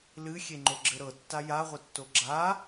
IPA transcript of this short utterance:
l ɨ xʲ e ŋ͡ǃ o ɡ͡ǁ ɘ ɾ ɤ tː a j a ʁʷ ɘ tː o ɡ͡ǁ a

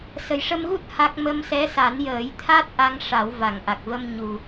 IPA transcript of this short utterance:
s ə˨˩ j ʂ ə˧ m ɣ u˦˥ t̚ h a˦˥ k̚ m ə˧ m s ɛ˧˥ s a˨˩˦ n j əː˨˩˦ j t̪ʰ a˦˥ t̚ ʔ a˧ ŋ ʂ a˨˩˦ w v a˨˩˨ ŋ ʔ a˨˩ k̚ v ə˧ m ɲ u˨˩

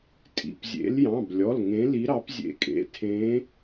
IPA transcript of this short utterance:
tʼ ḭ˩˧˩ p zʲ ḛ˨˦ l j ɑ̃˩˧˩ b lʲ ɔ˩˧˩ l ŋ ẽ˨˦ l i˨˦ ɾ ɑ˨˦ p zʲ ḛ˨˦ kʼ ḛ˩˧˩ tʰ ẽ˨˦

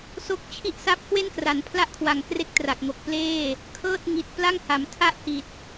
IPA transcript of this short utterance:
s o˦˥ k̚ t͡ɕʰ i˥˩ ʔ s a˥˩ p̚ k w e˥˩ n k r a˩˦ n pʰ l a˥˩ ʔ kʰ w a˨˩ ŋ k r e˦˥ k̚ t r a˨˩ k̚ ŋ o˨˩ k̚ p l eː˥˩ | kʰ ɤː˥˩ t̚ ŋ i˨˩ t̚ p l a˥˩ ŋ h a˩˦ m tʰ a˥˩ ʔ h i˨˩ t̚

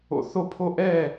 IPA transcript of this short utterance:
o̰˧ θ o˥˩ pʰ o˥ ʔ ɛ˥˩

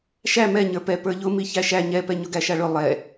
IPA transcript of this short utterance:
ʃ æ m ɛ ɲ ə˞ p ɛ p ə˞ ʎ ʊ m i ç æ ʃ æ ɲ ɛ p ɛ ɲ ʊ ɡ æ ʃ a ɭ ʊ lˠ ɛ

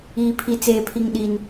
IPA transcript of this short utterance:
iː˦ pʰ i˦ t͡s eː˦ pʰ i˦ ŋ ɗ i˦ n

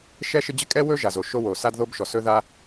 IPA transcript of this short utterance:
ʃ ɛ˥ ʃ ɪ˥ d͡ʑ ɪ˥ kʼ ɛ˥ w ɵ˥ ʒ a˩ z o˩ ʃ o˥ w o˩ s a˥ d ð o˥ b ʃ ɔ˩ s ɵ˥ ð a˥

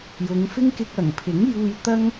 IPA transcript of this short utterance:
j ʊ˨˧ ŋ f ɪ˥ ŋ k ɪ˧ k̚ ɐ˨˩ ŋ pʰ ɪ˨˥ ŋ j uː˧ j t̪ ɐ˥ ŋ

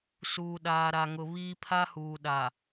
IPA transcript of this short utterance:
s uː˨ ɗ aː˨ ɾ a˨ ŋ ʊ˨ β iː˦ pʰ a˦ h uː˨ ɗ a˨

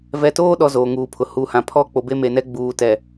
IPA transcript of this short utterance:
v ɛ˨ t oː˦ ɗ ɔ˨ z oː˨ ŋ uː˨ pʰ ʊ˨ h u˨ h ã˨ pʰ ɔ˦ k͡p o˨ b e˦ m e˨ n ɛ˦ ɡ͡b uː˨ t ɛ˨

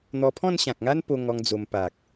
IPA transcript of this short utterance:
n̪ ɔ˧ pʰ ɔ̃˥˧ n ɕ ã˨ k̚ ŋ a˦ n p o˧ ŋ ɔ˧ ŋ d͡z o˧ m p a˨ k̚

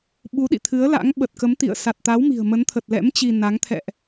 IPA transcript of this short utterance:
ɓ u˨˦ ɗ ḭ˧˨ t̪ʰ ɨ˨˦ ə̯ l a̰˧˥ ŋ ɓ ə˨˩ t̚ k ə˨˦ m t̪ ḭ˧˨ ə̯ s a˨˩ t̚ t̪ a˨˦ w m i̤˨˩ ə̯ m ə˨˦ n t̪ʰ ə˨˩ t̚ l ɛ̰˧˥ m t͡ɕ i˧ n a˨˦ ŋ t̪ʰ ɛ̰˧˨ ʔ

